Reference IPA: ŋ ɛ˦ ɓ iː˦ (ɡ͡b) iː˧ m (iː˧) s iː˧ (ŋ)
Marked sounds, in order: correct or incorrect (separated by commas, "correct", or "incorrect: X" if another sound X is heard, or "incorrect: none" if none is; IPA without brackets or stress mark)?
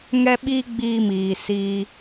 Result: correct, incorrect: iː˨, incorrect: none